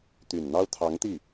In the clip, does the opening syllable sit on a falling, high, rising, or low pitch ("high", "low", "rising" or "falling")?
low